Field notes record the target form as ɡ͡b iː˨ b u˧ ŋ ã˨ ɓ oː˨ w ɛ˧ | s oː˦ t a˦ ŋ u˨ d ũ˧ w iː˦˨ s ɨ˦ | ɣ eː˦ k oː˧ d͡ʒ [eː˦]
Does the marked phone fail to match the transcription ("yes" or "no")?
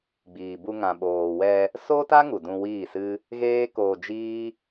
yes